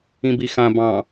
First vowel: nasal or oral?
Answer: nasal